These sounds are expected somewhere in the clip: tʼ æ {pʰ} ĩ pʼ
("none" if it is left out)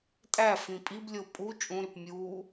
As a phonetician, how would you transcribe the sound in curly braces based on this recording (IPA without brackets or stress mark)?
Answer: f